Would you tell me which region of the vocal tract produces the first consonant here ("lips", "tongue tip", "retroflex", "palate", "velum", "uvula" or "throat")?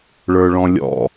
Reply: retroflex